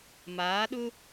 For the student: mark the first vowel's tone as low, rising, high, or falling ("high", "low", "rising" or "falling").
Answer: rising